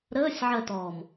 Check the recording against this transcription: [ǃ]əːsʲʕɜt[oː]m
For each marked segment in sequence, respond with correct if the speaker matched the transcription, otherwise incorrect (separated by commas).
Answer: incorrect, incorrect